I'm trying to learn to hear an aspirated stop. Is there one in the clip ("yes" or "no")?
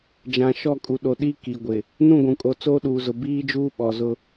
no